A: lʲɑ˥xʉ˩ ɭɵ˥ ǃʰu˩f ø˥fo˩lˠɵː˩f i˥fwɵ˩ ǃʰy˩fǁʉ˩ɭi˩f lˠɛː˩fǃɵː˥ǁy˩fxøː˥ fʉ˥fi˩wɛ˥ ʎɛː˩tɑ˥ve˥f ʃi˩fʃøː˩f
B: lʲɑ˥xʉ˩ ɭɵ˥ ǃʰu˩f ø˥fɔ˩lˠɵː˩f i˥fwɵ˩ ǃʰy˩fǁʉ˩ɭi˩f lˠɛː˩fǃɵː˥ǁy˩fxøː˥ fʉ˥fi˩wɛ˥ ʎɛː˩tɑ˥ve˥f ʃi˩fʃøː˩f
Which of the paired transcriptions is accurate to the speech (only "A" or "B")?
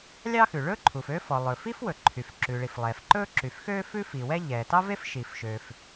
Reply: B